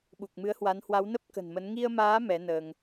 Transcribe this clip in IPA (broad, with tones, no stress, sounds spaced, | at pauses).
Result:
ɓ u˨˩ k̚ m ɨ˨˦ ə̯ h w a˨˦ n h w a˨˦ w n ə˦˥ p̚ k ə̤˨˩ n m ə˨˦ n ŋ i˧ ə̯ m aː˨˦ m ɛ˨˦ n əː˧ ŋ